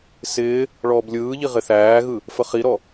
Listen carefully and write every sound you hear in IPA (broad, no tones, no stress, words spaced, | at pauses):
sɪː | ɭɔːblʲɯːʎi ʁɪθæːɣɯ | fəχiɾɔ